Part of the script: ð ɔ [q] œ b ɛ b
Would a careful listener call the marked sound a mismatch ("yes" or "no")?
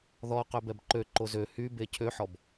no